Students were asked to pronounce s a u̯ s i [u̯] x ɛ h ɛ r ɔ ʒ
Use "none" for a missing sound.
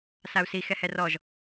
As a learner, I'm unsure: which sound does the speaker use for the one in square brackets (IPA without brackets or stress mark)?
none